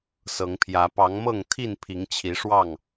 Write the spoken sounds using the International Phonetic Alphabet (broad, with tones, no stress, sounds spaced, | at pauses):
s ɤ˨˦ ŋ pʰ j ä˨˦ p ɑ˨˦ ŋ m ɤ˥˨ ŋ t̪ʰ i˥˨ n pʰ i˨˦ ŋ t͡ɕʰ i˨˦ ʂ w ɑ˥˨ ŋ